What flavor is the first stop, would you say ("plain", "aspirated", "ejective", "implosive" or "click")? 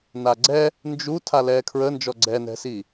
click